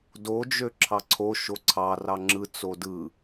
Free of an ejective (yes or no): yes